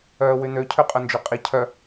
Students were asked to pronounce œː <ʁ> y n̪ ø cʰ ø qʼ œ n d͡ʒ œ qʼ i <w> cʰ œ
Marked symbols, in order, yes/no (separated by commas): no, no